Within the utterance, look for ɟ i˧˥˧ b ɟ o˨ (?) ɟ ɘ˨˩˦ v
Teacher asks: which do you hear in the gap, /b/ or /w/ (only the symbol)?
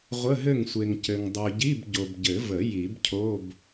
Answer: b